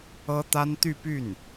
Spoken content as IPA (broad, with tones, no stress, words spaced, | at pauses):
ɤ˥t̪a˥n t̪y˥˧py˥˩n